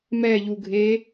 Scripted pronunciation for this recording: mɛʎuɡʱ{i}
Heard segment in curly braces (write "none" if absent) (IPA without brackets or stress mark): e